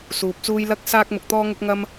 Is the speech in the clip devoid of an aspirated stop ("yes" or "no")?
yes